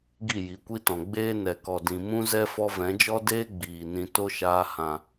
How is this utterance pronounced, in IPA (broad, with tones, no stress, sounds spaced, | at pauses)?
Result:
ɡ i˦˨ j i˨˦ kʷ i˦ t ɔ̃˨ ɡ͡b eː˦ n ɛ˨ k ɔ˨ d ĩ˨ m ũ˦ z ɛ˦ f ɔ˦ v ɛ̃˨˦ d͡ʒ ɔ˦ d eː˦ ɡ͡b iː˨ n ĩ˧ t o˦ ʃ aː˧ h ã˨